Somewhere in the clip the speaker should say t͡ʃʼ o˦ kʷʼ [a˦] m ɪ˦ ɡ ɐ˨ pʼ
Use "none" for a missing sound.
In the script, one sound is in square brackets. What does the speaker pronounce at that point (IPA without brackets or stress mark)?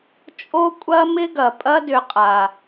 ɐ˦